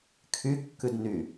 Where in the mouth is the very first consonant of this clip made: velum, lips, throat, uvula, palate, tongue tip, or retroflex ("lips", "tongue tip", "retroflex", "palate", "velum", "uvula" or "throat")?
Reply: velum